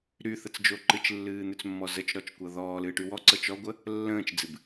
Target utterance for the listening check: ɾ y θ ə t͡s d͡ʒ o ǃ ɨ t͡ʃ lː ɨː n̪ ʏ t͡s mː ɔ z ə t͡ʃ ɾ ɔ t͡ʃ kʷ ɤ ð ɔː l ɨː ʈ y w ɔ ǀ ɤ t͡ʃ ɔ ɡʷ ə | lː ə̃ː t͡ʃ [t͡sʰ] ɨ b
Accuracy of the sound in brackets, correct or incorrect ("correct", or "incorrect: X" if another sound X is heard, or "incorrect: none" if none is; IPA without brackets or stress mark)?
incorrect: d͡z